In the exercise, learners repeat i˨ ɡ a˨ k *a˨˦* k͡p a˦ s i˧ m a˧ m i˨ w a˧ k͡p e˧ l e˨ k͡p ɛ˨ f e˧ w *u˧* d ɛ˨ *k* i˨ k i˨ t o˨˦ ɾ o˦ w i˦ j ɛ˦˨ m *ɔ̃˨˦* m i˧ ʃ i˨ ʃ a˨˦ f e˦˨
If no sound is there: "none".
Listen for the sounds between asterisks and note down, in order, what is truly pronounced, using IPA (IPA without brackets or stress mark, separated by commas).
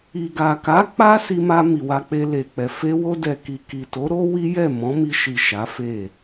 a˨˦, o˧, k, ɔ̃˨˦